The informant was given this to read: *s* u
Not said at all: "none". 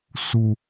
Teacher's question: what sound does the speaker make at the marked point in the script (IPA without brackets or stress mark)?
s